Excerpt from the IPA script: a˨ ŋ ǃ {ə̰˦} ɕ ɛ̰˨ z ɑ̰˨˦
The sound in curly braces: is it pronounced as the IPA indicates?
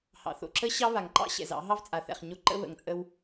no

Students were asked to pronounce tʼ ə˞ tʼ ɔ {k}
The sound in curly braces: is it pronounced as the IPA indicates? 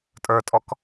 yes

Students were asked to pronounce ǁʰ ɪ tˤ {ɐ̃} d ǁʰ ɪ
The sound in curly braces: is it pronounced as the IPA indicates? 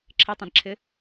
yes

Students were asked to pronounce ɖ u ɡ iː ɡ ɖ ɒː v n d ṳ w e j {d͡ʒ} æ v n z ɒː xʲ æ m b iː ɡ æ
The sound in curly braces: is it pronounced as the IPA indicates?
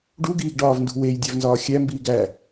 no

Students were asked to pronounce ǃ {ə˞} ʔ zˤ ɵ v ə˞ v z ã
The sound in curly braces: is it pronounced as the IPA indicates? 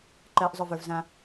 no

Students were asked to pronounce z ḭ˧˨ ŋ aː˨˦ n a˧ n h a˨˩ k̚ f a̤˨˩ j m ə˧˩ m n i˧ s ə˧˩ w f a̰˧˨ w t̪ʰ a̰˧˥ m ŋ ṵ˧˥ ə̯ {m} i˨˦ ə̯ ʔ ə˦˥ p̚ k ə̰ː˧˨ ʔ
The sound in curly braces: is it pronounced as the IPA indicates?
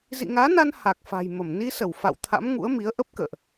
yes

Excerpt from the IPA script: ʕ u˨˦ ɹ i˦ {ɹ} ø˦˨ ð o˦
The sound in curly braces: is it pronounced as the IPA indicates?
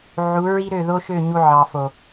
no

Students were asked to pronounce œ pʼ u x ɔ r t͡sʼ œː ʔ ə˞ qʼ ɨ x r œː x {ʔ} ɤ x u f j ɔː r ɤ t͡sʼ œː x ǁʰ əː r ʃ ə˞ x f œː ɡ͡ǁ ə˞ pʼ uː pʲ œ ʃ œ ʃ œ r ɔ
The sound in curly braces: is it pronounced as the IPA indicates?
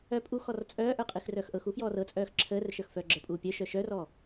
yes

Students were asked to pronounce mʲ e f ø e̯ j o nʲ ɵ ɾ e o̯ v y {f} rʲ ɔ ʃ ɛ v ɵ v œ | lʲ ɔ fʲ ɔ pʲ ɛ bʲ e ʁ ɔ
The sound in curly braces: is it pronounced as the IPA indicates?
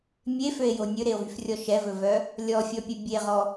yes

